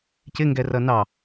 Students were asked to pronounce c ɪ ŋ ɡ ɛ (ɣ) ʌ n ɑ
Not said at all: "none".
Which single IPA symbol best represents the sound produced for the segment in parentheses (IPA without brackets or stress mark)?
r